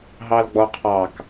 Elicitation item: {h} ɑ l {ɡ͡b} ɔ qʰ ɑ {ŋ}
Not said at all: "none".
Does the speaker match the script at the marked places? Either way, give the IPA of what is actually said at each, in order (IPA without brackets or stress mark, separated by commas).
ɦ, ɡ͡b, k